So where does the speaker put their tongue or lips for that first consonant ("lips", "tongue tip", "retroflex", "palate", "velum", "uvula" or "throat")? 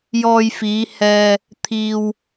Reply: palate